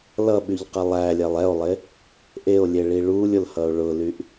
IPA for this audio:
l ʌ ɓ y ʎ q ɛ lˠ æ lʲ ɛ lˠ ɛ o̯ lˠ e | ʔ e o̯ lʲ e ɭ i ɭ u lʲ ʊ l h ʌ o̯ ɭ ʊ l y ʔ

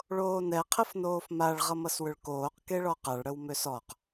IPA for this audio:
ɭ oː n ɛ qʰ ə f n oː f m a ɭ ʁ ʌ m ʌ s w ʏ ɭ k oː q k e ɭ ɔ q a ɭ ɽ ə w m ø s ɔ q

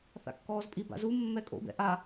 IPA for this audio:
θ a̰ kː ɔː z pʼ i b a̰ z u mː ɛ kʼ o̰ b ɛ̰ ʔ a

